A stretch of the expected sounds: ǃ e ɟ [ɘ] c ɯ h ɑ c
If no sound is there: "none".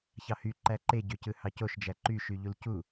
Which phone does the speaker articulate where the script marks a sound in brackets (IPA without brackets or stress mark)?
ø